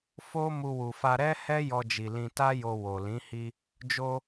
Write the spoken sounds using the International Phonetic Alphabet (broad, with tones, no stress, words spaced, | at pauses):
fo˦ mu˧wu˨fa˧ ɾɛ˦hɛ˦ jɔ˧d͡ʒi˨ lĩ˧ta˦jo˧ wo˨lĩ˨˦ hi˧ | d͡ʒo˧